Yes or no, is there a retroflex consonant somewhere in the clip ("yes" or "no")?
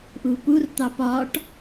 yes